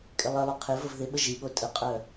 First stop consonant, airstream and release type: ejective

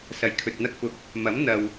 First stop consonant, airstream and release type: aspirated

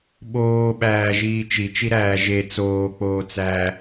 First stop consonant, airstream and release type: implosive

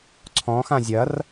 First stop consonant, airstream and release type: click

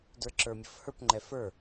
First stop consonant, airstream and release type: plain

